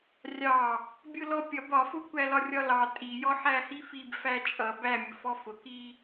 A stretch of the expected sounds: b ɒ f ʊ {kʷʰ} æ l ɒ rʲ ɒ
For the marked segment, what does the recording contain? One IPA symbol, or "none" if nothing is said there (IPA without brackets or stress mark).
kʷ